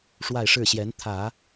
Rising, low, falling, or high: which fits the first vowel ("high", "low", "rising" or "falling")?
falling